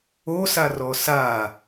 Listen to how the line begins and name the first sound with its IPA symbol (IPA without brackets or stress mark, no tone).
o